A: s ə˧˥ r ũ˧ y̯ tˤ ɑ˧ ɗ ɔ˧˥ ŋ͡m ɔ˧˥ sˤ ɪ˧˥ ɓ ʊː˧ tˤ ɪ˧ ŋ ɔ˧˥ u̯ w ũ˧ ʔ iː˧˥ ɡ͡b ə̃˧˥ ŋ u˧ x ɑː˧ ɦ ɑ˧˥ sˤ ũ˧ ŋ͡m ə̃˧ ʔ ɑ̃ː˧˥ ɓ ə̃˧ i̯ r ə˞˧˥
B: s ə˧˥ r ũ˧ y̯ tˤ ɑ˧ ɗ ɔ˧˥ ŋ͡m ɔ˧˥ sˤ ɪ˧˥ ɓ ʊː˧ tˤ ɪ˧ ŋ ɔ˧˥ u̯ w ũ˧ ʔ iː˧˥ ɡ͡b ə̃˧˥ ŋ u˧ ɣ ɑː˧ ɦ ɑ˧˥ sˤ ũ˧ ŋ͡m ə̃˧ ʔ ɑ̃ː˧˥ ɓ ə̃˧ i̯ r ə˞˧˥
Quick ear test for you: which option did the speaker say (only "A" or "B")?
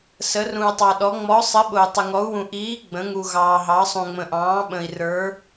B